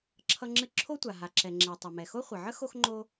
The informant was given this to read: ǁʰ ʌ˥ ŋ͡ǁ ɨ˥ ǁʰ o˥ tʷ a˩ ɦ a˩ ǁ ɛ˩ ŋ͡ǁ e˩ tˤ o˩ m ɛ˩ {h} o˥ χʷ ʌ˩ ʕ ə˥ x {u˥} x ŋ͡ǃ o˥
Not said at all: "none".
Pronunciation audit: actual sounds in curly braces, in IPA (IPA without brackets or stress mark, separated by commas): x, o˥